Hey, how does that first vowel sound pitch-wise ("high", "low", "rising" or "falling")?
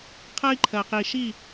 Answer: high